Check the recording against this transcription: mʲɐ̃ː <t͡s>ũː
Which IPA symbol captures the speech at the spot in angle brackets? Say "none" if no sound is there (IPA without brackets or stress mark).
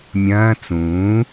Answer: t͡s